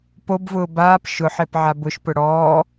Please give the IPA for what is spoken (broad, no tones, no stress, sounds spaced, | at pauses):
p o b v ʊː b aː p ʃ ʊ ħ e p ʕ a b ʊ ʃ p ʊ ɽ ɔː